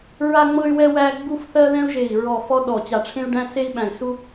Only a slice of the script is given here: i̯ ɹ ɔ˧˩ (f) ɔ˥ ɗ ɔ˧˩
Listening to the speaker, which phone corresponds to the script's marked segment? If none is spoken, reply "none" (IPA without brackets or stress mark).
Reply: f